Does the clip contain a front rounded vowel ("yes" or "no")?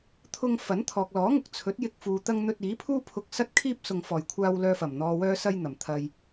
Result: yes